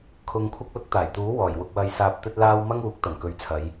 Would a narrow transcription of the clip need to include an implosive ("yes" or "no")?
no